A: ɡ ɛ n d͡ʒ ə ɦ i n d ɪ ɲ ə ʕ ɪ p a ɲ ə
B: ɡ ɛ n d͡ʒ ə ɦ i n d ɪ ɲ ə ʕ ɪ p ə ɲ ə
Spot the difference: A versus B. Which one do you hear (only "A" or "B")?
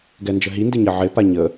A